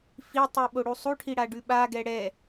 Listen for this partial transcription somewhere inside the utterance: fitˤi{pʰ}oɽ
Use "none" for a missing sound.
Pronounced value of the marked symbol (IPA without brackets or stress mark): ɓ